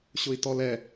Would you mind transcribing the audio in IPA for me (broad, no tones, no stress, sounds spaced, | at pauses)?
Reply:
ɕ ʊ i̯ t ɔ l ɛ